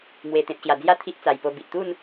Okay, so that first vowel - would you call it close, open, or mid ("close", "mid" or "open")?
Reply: mid